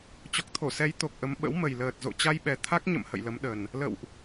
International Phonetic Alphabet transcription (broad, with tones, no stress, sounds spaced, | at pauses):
t͡ɕ ɔ˨˩ k̚ t̪ʰ o˧˩ s ɛ˨˦ j t̪ o˨˩ k̚ ʔ ə˨˦ m ɓ ə̰˧˥ w m ə˨˩ j l əː˨˩ t̚ z o̰˧˨ t͡ɕ a˧ j ɓ ɛ˨˩ t̪ʰ a˦˥ k̚ ɲ ə̰˧˨ m h ə̰˧˨ j l ə˨˦ m ɗ ə˨˩ n | l ə̰˧˨ w ʔ